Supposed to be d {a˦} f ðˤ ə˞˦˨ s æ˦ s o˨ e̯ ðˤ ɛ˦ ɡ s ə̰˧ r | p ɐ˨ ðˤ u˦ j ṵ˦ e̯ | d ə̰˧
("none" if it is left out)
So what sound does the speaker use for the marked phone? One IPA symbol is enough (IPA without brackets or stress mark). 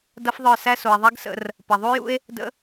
ɐ˦